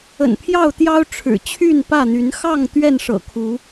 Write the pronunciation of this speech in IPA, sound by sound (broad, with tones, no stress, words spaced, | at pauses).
ə̰˨˩npʰjɑ˥˨ʊ̯t̪jɑ˦ʊ̯ ʈ͡ʂʰɻ̩˨˩t͡ɕʰy˥˨n pä˥˨n̪y˨˦n xɑ˥˨ŋ t̪ɥɛ˥˨nʂɤ̰˨˩kʰu˨˦